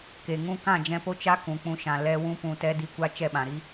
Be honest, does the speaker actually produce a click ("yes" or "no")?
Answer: no